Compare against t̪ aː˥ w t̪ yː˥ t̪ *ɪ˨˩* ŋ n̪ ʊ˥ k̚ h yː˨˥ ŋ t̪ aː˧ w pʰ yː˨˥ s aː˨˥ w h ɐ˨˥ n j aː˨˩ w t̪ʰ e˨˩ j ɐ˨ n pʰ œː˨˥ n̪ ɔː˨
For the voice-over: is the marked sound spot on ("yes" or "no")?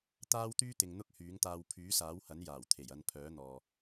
no